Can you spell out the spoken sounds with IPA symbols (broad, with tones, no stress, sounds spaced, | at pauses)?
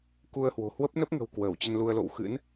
k u˧ ə̯ h w o̤˨˩ h w ə˦˥ p̚ n ə˦˥ p̚ ŋ ə̤˨˩ w k w əː˧˩ w t͡ɕ ə˧ n l u˧ ə̯ l o̰˧˨ w x ɨ̰˧˥ n